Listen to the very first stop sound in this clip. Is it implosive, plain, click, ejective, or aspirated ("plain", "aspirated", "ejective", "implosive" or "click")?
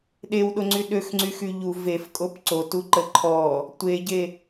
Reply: implosive